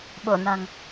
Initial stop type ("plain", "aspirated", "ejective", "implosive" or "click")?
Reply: implosive